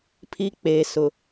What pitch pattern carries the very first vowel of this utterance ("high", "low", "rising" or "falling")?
high